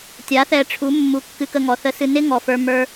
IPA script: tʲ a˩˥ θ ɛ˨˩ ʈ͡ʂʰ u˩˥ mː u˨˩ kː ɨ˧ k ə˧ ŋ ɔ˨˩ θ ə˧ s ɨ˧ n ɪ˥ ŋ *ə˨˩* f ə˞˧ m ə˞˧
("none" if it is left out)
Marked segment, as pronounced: ɔ˨˩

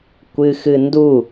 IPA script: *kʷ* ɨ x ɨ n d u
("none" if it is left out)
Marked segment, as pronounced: kʷ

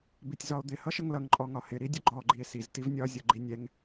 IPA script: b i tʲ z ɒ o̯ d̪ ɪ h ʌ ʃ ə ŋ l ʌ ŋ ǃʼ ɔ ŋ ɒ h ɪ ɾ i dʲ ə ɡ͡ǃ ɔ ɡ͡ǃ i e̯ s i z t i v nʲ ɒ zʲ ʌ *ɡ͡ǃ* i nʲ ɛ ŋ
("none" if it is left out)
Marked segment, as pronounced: ɡ͡ǃ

